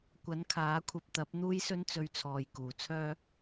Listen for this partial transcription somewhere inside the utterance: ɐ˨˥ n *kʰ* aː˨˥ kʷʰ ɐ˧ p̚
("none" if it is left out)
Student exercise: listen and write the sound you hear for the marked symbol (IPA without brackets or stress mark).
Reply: kʰ